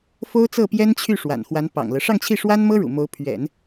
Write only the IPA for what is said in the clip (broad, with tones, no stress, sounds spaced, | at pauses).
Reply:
f o˥ ʊ̯ t͡s ɤ˥˩ p j ɛ˥ n t͡ɕʰ y˥˩ ʂ w a̰˨˩ n x w a˧˥ n p ɑ̰˨˩ ŋ l ɤ˦ ʂ ɑ˥˧ ŋ t͡ɕʰ i˥˩ ʂ w a˥ n m ɤ˥ ɻ ṵ˨˩ m o˧˥ ʊ̯ pʰ ɥ ɛ̰˨˩˦ n